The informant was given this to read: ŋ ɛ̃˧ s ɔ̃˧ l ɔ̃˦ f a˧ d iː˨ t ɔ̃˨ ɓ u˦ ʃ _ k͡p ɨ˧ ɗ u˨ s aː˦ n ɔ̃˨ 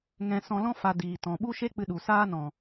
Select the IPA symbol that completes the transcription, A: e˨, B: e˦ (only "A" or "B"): B